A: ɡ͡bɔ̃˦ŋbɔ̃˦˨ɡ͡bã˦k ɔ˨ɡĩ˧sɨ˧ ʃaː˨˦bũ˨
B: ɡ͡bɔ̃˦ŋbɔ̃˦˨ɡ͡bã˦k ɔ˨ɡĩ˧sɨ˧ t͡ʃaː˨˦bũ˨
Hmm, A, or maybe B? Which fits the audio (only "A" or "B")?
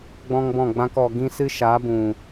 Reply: A